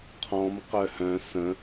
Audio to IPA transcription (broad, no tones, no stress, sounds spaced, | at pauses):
qʰ ɔ̃ m q œ h œ̃ s ə̃